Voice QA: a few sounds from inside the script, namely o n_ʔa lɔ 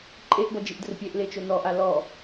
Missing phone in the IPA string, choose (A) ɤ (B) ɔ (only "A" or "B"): B